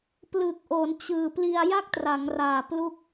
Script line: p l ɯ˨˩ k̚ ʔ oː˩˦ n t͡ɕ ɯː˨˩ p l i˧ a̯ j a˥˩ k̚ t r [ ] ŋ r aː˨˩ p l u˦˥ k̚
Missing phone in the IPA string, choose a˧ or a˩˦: a˩˦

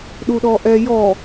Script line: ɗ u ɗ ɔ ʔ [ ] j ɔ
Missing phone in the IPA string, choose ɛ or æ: ɛ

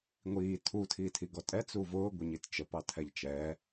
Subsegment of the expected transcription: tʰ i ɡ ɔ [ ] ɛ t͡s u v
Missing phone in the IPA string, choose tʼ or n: tʼ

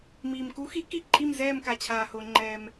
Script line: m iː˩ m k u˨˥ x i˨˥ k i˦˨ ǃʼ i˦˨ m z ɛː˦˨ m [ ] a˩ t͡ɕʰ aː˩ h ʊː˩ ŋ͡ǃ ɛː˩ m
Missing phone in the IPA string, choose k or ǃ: k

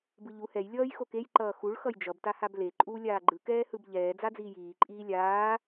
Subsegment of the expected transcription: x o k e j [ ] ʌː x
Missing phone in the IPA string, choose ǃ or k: ǃ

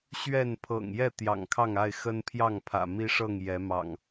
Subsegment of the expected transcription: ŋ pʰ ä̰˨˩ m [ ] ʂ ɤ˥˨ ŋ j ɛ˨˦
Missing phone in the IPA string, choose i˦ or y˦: i˦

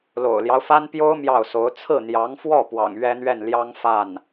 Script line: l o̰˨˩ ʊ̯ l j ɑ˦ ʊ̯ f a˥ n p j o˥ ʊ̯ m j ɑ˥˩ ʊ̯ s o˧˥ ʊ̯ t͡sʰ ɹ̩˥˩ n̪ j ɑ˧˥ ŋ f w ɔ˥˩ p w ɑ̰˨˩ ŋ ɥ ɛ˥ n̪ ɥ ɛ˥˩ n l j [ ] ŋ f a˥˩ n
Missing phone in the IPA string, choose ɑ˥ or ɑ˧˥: ɑ˥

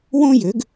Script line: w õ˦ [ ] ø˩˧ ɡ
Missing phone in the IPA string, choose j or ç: j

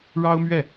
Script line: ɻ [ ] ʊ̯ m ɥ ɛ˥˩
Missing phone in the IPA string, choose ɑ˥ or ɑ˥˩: ɑ˥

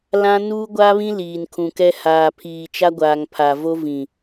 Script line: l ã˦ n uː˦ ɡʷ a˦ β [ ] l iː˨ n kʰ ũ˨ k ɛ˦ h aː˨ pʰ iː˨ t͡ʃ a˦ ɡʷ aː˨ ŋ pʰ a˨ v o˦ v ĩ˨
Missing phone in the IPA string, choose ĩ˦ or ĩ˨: ĩ˦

